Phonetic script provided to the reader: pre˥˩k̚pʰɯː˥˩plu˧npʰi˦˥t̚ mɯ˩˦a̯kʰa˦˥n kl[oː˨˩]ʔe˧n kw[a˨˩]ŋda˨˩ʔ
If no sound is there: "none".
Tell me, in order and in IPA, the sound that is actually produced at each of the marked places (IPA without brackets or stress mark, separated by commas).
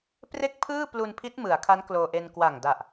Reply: oː˧, a˨˩